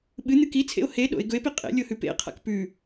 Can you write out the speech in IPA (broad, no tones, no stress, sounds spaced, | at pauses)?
ɓ ɨ n̪ ɨ k i t͡sʰ ḛ o̯ h e ɗ o̰ e̯ ɡ ɵ e̯ p i qʼ ḛ lʲ o h ʉ p ḛ qʰ a̰ k p ʉ